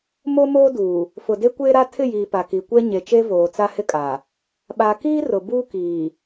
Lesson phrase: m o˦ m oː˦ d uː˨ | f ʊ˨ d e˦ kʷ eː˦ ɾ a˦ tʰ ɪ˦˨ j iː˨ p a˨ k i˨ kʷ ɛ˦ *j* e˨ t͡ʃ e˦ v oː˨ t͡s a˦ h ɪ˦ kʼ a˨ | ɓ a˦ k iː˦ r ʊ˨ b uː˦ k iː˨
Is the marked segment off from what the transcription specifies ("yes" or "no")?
yes